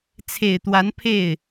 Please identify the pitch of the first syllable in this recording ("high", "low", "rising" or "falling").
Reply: low